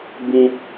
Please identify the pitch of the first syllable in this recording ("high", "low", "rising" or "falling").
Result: low